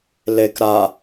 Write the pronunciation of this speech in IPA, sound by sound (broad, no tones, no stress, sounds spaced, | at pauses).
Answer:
l e k ɾ a